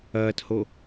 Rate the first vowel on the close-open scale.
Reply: open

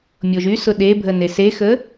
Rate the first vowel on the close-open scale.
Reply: mid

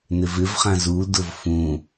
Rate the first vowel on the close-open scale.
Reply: close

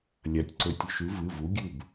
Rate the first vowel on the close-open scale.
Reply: open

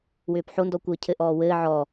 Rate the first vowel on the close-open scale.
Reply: close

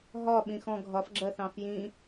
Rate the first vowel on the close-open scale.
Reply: open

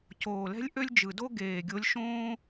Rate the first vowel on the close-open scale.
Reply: mid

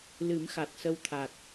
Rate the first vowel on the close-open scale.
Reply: close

